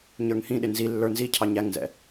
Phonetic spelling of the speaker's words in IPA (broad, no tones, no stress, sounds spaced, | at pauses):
ɲ ə˞ ŋ h ĩ ɗ ɪ n z i lː ə˞ n z i cʰ ɑ ɲ æ ŋ n z ɛ̰